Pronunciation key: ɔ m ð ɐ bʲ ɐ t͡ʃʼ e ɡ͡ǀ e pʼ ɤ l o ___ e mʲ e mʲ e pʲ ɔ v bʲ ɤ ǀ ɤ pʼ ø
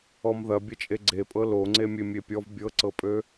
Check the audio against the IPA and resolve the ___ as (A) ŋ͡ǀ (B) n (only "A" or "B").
A